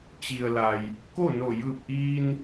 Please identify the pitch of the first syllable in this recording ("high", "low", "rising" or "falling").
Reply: low